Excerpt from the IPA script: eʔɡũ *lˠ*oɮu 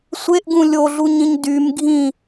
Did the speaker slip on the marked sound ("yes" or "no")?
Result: yes